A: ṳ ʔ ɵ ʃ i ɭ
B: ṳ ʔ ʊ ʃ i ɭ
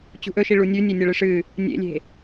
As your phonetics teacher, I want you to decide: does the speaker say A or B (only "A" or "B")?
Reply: A